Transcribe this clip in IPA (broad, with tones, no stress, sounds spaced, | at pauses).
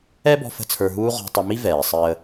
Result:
ɛ˥ b ɔ̤˧ f ə̤˥ t͡sʰ ə˞˧ ɦ uː˥ ʁ ɔ̤˧ tˤ ə˧ m i˥ v ɛː˩ sˤ əː˧